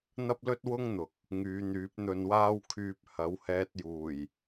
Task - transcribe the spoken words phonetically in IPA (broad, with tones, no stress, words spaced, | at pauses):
n̪ɐ˥p̚lɵ˥t̚ wʊ˥ŋn̪ʊ˨˥k̚ | ŋyː˨˧n̪yː˨˥p̚ n̪ɵ˧nwaː˥wkʰyː˧p̚ hɐ˨˥whɛː˧t̚ juː˨˩j